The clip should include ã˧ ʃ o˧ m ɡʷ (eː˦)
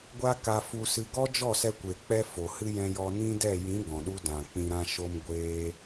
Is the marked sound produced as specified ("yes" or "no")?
no